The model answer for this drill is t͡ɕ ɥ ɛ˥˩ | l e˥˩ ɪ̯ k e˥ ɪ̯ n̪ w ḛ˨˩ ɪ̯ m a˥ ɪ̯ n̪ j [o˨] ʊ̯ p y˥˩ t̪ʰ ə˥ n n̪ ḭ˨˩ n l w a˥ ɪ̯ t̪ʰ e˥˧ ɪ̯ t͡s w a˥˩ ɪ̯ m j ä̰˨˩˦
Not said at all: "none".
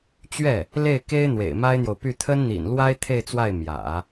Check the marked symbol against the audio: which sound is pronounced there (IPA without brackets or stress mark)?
o˨